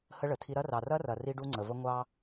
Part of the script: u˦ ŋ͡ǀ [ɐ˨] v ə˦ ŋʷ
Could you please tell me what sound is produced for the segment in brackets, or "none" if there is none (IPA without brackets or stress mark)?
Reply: ə˨